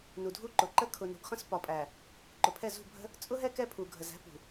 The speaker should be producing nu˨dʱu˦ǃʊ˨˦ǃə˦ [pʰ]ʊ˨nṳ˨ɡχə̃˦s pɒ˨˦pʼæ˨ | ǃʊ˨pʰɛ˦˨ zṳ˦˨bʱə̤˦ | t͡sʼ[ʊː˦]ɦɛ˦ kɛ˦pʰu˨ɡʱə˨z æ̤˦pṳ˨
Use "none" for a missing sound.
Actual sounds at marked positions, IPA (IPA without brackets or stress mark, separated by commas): kʰ, ʊ˦